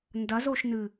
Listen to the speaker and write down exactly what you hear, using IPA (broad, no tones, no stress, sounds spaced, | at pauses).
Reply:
n d ɐ z o ʃ n ɨ